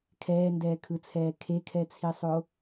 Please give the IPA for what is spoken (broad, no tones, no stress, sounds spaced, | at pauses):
kʰ ɛː n d ɛː kʰ ɯ t͡sʰ ɛː kʰ e kʰ ɛ t͡sʰ i sˤ o